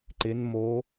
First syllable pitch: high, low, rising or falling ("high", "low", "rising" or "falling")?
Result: rising